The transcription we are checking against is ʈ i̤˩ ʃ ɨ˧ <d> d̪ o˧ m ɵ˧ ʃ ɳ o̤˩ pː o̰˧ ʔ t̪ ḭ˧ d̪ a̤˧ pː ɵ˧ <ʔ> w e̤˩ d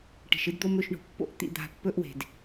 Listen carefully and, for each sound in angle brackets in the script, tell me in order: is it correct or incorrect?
correct, correct

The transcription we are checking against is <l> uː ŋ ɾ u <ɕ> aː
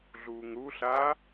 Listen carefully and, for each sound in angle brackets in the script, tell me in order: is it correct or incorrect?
incorrect, incorrect

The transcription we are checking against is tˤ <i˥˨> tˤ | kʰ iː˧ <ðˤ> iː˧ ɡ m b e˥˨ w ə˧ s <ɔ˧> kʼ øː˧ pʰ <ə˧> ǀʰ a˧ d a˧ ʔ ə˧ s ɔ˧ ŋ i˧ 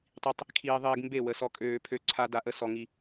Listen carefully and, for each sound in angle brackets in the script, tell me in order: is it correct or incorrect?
incorrect, correct, correct, incorrect

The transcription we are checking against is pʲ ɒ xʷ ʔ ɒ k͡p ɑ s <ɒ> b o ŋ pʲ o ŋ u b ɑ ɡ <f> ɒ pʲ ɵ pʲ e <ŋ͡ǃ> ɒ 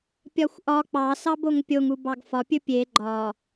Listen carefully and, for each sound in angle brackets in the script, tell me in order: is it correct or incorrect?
incorrect, correct, incorrect

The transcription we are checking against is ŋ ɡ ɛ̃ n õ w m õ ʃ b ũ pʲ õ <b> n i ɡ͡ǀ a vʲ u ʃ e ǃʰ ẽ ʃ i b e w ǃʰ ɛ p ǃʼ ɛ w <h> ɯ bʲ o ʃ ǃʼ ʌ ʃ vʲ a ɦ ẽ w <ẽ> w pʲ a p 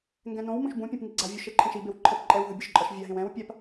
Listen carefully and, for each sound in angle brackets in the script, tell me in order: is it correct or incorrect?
incorrect, incorrect, incorrect

